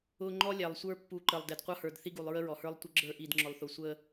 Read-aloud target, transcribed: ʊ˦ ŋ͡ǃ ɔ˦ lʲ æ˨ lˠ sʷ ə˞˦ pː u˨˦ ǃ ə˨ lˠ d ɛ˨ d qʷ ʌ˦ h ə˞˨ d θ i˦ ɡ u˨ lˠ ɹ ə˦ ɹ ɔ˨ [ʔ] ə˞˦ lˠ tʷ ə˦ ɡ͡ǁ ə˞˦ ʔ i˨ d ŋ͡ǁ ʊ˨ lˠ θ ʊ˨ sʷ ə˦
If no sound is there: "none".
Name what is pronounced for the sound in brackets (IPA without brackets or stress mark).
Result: h